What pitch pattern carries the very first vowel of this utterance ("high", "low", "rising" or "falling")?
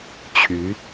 rising